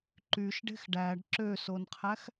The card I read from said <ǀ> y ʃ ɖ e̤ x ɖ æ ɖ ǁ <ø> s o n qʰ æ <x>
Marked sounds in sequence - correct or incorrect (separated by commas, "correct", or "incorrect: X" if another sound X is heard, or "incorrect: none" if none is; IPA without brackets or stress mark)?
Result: incorrect: ǃ, correct, correct